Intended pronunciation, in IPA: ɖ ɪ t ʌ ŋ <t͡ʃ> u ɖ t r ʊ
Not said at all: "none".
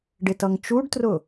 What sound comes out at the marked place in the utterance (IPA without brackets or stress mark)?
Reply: t͡ʃ